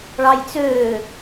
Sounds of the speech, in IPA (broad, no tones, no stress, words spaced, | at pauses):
ɭɑjt͡søː